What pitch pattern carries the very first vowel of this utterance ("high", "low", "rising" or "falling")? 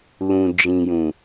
low